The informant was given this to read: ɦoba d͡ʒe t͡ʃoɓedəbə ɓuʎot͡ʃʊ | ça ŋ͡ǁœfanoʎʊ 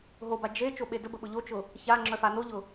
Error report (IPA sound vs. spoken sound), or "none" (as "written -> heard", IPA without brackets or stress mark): u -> ʊ